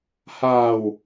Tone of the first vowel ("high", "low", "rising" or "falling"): low